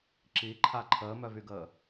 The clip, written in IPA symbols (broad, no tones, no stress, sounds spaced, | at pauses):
ǁ i ǃʰ a ǃʰ əː m œ v y ɡ əː